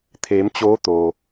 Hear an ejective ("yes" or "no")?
no